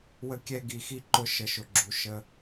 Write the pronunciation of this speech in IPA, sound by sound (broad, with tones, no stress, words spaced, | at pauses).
wə˧kʲɛ˧ ɡi˨xi˦ ǃʊ˧ ʃə˨ʃʊ˨ ɡ͡ǁu˨ʃə˧